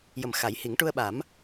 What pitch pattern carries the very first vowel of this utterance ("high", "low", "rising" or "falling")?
low